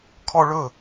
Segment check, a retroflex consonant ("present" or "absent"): present